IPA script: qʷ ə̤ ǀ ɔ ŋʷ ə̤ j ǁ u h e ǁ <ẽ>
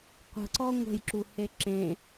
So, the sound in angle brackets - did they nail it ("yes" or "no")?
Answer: yes